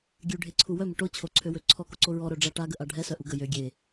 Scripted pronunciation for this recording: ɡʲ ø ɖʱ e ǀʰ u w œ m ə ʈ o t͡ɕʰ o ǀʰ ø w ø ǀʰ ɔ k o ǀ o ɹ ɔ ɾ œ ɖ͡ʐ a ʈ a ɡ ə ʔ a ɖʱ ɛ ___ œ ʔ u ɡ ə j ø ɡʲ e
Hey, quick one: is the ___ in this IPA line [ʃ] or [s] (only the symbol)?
s